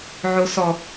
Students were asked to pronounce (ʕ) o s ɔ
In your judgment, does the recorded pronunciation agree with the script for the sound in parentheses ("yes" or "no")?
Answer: yes